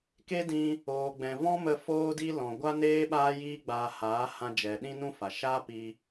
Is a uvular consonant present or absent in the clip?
absent